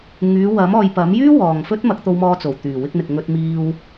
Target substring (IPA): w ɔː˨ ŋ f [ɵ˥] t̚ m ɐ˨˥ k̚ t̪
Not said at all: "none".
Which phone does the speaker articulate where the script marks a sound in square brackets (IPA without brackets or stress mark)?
ɵ˥